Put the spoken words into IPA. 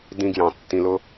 d ĩ˧ ɡ j ɑ̃˨ tː ĩ˨ l ʊ˧

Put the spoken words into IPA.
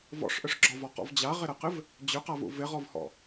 v ɔ̰ ʂ ʔ ʏ ʂ ɡ͡ǁ ɒ v ɔ q ɔ̰ v d͡ʑ a ʁ ɪ ɾ ə q ɪ v | d͡ʑ ʏ q a v ṵ v ɪ ʁ ɔ v h ɔ̰

